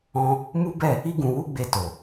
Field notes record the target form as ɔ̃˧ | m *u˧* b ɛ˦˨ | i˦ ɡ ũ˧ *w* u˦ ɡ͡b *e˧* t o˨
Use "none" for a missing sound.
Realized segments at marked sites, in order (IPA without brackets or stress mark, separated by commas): u˦, w, e˧